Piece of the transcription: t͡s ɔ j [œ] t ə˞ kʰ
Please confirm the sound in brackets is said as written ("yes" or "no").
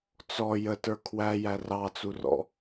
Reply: no